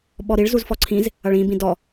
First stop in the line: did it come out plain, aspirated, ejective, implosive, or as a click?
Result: implosive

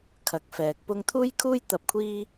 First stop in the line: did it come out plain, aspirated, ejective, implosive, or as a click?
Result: aspirated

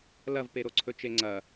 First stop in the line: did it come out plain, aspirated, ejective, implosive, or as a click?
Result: plain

